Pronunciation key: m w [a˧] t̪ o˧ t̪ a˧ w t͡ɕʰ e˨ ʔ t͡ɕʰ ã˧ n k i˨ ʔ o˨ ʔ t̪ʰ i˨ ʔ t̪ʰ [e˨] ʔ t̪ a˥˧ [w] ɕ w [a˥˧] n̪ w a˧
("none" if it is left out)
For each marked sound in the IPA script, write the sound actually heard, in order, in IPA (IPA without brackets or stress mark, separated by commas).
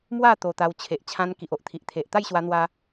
a˥˧, e˨, j, a˧